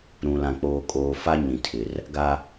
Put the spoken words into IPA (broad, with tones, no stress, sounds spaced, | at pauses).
ɾ ũ˨ l ã˨ k͡p oː˨ kʼ oː˨ f a˦ ɲ ĩ˨ tʰ ɪ˨ r | ɡ a˦